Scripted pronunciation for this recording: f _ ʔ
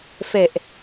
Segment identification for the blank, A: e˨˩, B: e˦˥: A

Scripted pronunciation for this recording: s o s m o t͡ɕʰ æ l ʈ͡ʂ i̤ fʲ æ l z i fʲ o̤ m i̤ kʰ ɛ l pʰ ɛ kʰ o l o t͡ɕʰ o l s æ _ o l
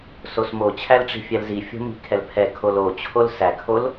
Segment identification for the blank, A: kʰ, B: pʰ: A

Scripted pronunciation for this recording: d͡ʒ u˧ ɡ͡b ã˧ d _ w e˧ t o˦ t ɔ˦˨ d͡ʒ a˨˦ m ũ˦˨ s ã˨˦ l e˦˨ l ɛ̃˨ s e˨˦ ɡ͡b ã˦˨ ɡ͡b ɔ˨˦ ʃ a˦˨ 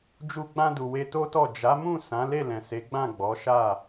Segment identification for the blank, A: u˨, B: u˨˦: A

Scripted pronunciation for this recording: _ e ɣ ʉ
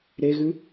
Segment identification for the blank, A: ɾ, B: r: A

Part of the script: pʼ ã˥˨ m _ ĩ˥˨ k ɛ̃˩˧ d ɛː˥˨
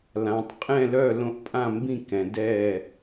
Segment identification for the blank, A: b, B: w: A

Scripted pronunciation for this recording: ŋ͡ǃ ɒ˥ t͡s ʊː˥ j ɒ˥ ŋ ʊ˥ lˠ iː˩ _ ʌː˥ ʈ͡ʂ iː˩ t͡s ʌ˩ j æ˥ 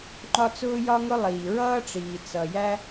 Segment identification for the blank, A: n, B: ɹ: B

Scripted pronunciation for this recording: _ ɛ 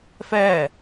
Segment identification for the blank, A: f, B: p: A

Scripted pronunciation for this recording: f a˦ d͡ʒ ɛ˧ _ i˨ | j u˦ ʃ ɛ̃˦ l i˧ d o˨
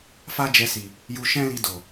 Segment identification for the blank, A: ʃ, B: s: B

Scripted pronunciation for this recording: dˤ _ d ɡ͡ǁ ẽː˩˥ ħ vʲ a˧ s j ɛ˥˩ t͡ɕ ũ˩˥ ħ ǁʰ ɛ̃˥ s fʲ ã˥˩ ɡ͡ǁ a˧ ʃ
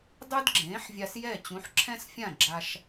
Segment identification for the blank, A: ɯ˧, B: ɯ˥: B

